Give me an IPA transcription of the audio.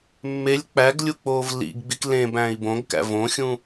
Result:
mː e lʲ k͡p æ ɡ lʲ u k͡p oː v l ḭ ɡ ɡ͡b i k l ẽ b æ̃ i̯ b õ ɡ k æ̰ v õ xʲ ũ

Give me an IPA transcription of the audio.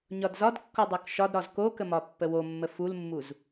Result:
ɲ ɒ d z ɒ d kː o dˤ o k ʃ ɒ d ɾ ɒ z k o k ə m ɒ pː ə w o mː ə f u l mː u z

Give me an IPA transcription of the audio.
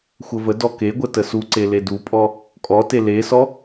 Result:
xʷ ə v ə d ɔ k e ɡʷ ə t ə s u ǀ e l e d u pʼ ɔ | kʼ ɔ t e l e s ɔ

